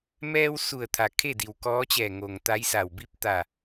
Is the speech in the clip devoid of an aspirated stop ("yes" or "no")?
no